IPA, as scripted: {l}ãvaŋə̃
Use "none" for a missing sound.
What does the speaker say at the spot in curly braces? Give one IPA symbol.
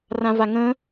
r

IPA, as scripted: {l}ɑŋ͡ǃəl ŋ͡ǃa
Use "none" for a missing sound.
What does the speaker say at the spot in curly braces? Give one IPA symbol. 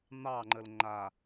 n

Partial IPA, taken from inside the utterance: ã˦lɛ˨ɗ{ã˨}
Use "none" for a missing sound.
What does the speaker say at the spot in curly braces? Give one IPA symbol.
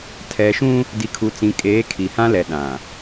ã˨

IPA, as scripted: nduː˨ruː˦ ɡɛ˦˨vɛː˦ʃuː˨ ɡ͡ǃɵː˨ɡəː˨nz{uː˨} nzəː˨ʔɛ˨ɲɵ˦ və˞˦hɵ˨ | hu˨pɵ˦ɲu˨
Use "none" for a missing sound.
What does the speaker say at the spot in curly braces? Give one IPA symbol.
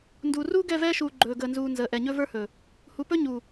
uː˨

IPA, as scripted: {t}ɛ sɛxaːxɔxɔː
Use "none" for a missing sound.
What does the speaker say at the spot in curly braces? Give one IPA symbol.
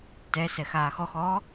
t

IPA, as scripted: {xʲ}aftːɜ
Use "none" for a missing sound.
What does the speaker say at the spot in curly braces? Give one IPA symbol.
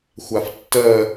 xʷ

